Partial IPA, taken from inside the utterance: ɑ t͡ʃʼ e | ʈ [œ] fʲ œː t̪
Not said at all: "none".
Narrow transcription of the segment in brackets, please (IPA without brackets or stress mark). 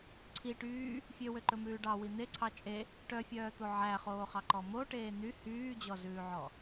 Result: œ